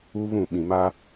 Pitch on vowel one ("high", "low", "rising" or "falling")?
high